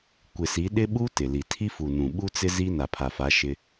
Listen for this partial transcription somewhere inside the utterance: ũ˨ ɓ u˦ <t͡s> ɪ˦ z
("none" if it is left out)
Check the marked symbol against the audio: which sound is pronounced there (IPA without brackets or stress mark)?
t͡s